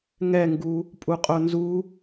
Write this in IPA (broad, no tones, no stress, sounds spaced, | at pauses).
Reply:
ŋ ɛ ŋ ɡ u | pʼ u qʼ o n z u